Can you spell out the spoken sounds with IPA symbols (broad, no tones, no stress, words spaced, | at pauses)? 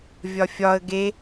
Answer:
vʲɒfʲɒə̯ ɡe